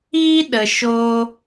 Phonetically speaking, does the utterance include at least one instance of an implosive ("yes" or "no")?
yes